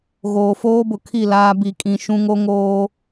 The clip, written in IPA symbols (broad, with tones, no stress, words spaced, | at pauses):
ɣoː˨foː˦bʊ˨ kʰi˦˨ laː˦ bi˨kʼĩ˨ ʃũ˦ŋo˦ŋoː˦